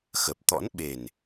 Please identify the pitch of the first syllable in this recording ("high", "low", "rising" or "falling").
low